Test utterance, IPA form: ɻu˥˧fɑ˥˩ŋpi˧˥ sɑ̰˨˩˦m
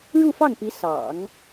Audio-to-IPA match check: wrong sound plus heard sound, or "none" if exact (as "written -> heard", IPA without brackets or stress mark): m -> ŋ